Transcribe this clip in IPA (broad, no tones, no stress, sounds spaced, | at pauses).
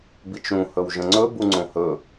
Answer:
b i t͡ʃ ɾ ũ h ɵ w ʒ ə̃ ŋ͡ǀ ɵ b u ŋ͡ǀ õ h ɵ